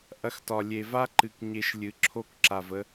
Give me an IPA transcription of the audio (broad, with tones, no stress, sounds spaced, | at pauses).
ʔ ɐ˧ x t ɒ˨ lʲ e˨ v a˦ ǃ ɨ˨ k ɲ e˧ ʃ lʲ ɨ˨ ǁʰ o˦ k ǁ a˨ v ə˧